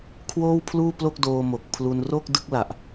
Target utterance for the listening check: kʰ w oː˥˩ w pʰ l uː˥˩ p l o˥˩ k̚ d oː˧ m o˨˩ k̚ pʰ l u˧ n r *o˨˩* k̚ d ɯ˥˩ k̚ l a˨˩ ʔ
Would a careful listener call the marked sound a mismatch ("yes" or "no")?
yes